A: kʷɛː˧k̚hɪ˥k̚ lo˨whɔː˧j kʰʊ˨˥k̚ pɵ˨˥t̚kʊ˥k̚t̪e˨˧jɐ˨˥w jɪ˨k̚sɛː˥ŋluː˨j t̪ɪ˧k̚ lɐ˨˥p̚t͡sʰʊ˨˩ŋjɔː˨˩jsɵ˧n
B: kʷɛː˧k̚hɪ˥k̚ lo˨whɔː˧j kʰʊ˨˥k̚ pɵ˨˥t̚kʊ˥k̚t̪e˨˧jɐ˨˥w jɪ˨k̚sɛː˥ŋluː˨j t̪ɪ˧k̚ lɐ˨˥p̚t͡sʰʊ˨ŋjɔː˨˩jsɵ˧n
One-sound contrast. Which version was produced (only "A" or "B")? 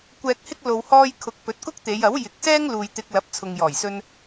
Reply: B